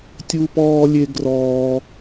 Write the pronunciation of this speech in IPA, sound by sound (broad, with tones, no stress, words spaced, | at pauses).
tʲu˥pɔː˥lʲe˥ ɡrɔː˥